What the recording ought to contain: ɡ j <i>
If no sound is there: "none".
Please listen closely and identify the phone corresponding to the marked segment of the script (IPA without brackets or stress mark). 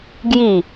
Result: i